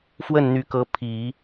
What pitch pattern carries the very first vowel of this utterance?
falling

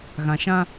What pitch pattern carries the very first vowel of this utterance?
low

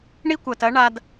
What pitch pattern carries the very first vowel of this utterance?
high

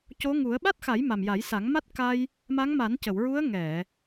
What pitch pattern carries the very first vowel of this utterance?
rising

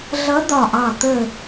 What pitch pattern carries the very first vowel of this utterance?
rising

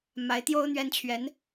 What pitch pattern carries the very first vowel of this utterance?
rising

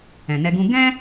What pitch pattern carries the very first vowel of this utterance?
low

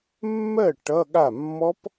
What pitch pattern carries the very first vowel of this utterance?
falling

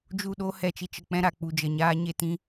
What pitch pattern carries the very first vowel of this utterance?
falling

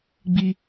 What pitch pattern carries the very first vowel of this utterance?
low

